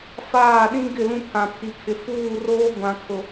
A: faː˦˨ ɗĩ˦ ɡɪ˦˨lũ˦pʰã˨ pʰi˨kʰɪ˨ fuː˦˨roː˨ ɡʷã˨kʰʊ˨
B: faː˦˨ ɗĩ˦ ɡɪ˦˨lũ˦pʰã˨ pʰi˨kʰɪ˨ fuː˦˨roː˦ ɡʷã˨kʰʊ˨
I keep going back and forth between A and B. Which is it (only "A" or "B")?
B